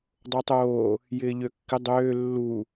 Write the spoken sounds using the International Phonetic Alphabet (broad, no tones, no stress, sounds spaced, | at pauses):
dˤ o tˤ oː | j ɪː ʎ ø kː ɪ dˤ øː lː u